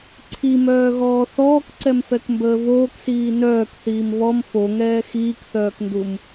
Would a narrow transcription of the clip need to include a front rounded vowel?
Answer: yes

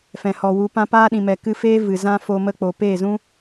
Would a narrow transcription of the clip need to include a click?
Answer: no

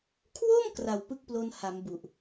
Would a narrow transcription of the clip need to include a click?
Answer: no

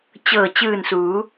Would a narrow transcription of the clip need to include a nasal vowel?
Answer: no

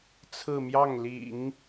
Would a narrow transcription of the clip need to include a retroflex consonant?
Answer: no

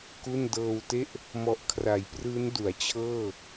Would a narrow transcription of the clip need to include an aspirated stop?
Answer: yes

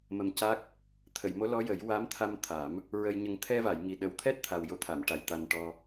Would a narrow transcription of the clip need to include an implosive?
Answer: yes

